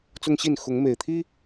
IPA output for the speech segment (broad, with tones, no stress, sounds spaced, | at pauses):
t͡s ʊ˦ ŋ ɕ i˥˨ n x ʊ˨˦ ŋ m e˨˩ ɪ̯ t̪ʰ i˦